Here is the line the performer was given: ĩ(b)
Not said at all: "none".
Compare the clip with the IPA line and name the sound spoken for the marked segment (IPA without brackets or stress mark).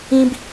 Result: b